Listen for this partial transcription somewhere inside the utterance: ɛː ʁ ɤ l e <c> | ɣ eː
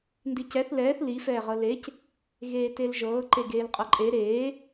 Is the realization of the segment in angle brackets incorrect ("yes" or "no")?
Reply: no